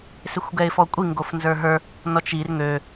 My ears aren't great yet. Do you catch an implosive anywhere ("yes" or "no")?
no